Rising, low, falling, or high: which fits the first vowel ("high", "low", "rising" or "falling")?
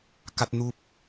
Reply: high